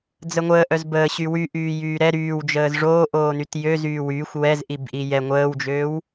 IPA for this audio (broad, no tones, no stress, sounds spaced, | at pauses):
d͡z ə ŋʷ əː ʔ œ z b əː ɕ y w y ʔ yː j yː ɾ ɛ ɾ yː w d͡ʒ əː z ʐ oː ʔ oː n y t j ø z yː w yː xʷ w ɛ z ʔ i b ʔ i j ɛ ŋʷ əː w d͡ʒ øː w